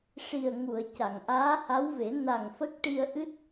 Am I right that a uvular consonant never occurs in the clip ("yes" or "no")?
yes